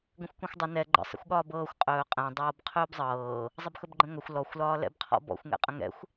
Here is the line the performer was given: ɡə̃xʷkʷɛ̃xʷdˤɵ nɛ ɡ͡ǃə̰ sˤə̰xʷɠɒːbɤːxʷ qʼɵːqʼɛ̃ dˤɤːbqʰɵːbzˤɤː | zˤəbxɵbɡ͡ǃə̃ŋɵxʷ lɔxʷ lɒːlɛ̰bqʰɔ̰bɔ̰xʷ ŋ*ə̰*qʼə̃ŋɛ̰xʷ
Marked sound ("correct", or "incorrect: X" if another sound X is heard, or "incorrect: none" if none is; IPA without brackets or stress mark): incorrect: ɛ̰